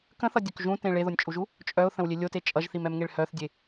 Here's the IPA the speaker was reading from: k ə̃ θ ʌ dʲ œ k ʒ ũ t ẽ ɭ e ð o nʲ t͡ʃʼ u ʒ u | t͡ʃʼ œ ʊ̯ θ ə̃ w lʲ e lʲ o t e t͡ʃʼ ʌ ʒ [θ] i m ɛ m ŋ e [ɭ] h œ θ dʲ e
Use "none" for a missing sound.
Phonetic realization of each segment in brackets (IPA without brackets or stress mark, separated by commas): θ, ɭ